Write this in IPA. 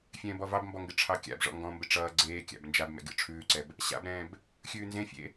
fʲ ɛ̃ː b ɔ v ɑ b m b ɔ ŋ ɡ ɪ ʈ͡ʂʰ ɑ kʲ a̰ b ʐ ɔ̰ ŋ ɡ ɔ̃ m b ɪ ʈ͡ʂ ʌː ɡ͡ǀ eː kʲ a̰ b n d͡ʒ a b m ɛ̰ ɡʲ ɔ̰ ʈ͡ʂʰ ʉː ǀ ɛ b | ɕ a̰ b ɾ ɛ̃ː b | xʲ ʉː n z ẽ fʲ ḛ

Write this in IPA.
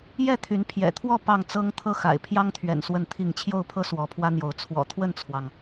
j ɛ˥˨ t̪ʰ y˨˦ n pʰ j ɛ̰˨˩ t̪ʰ w ɔ˥˨ p ɑ˥˨ ŋ t͡s ɤ˦ ŋ t̪ʰ ɤ˥˨ x a̰˨˩ ɪ̯ pʰ j ɑ˦ ŋ t̪ʰ ɥ ɛ̰˨˩ n s w ə˥˨ n t̪ʰ i˥˨ ŋ t͡ɕʰ j o˥˨ ʊ̯ pʰ ɤ˦ s w ɔ˨˦ pʰ w ä˦ n̪ j o˨˦ ʊ̯ t͡sʰ w ɔ̰˨˩ t̪ʰ w ə˥˨ n t͡sʰ w ɑ˩ ŋ

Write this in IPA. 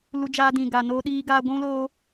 l u˧ d͡ʒ aː˧ d ĩ˨ ɡ aː˨ n oː˧ ɗ iː˧ ɡ aː˧ ɡʷ ũ˦ l oː˦

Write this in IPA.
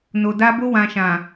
n o˨ d a˧ b o˧ w ã˨ ʃ ã˨

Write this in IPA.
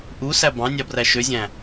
ʔ u s æ b ɑ̃ nʲ ɑ b r æ ʃ ø zʲ æ̃

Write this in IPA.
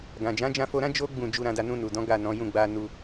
ɡ ã˨ d͡ʒ ã˨˦ d͡ʒ ã˧ f o˧ ɾ ã˦ d͡ʒ o˦ ɡ͡b ũ˦˨ d͡ʒ u˧ ɾ ã˧ d a˧ n ũ˧ n u˨ d ɔ̃˨˦ ɡ a˦˨ n ɔ̃˨˦ j ũ˦˨ ɡ͡b a˧ n u˧

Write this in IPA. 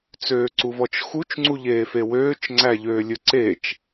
t͡s øː ǀ u v ɔ t͡ʃ x u t͡ʃ ŋ͡ǀ u ʎ eː f e w øː t͡ʃ ŋ͡ǀ æ ʎ øː lʲ ɵ ǀ e t͡ʃ

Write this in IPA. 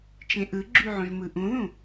t͡ʃ ẽ ʔ ɯ ɡ͡ǁ y ʕ õ ʒ m ɯ ʔ ũ ð ũ

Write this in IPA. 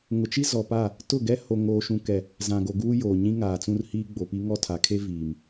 ŋ ʊ˨ t͡ʃ i˦ z ɔ˨ p a˦˨ | t ʊ˦˨ ɡ ɛ˦ h o˨ ŋ oː˨ ʃ ũ˨ k ɛ˨ | z ã˨ ɡ o˨ ɡ uː˦ j oː˨ ɲ ĩ˦ ŋ aː˨ t͡s ũ˦ r h iː˦ ɡ͡b o˨ p i˦ ŋ ɔ˦ tʰ a˨ kʰ e˦ v iː˨ m

